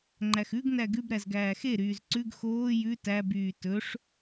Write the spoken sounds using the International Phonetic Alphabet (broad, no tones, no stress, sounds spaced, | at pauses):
ŋ͡ǃ æ x ʉ ɡ n æ ɡ ʉ b ɾ æ z ɡ æː x e ɾ yː z ǀ ʉ ɡ x oː j ʉ t æ b yː t ɵ ʂ